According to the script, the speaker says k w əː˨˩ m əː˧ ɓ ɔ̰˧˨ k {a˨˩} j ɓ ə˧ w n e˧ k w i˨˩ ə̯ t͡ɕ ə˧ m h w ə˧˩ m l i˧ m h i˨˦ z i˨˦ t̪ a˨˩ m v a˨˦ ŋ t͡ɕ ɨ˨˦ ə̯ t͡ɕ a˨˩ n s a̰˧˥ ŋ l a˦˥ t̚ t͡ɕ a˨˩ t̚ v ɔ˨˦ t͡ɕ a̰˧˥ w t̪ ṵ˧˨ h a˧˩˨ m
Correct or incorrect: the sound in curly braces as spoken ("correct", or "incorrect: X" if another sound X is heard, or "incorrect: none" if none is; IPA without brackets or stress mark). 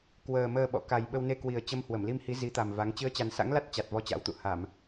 correct